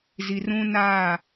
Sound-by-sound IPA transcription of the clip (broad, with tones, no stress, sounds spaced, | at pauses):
z i˨ r ũ˦ n aː˦˨